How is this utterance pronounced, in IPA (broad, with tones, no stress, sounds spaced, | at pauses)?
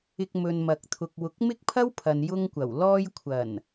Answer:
ɪ˧ k̚ m ɵ˨ n m ɐ˨ k̚ t̪ʰ ʊ˨ k̚ w ʊ˨˥ k̚ m ɪ˥ k̚ pʰ ɐ˥ w pʰ ɐ˨ n j ʊ˧ ŋ kʷ ɐ˨˩ w l ɔː˧ j kʷʰ ɐ˨˩ n